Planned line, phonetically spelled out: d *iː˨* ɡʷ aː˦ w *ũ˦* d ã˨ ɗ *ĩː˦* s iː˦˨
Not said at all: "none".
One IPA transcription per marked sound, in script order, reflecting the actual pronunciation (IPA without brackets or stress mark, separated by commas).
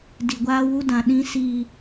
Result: i˨, u˦, ĩ˦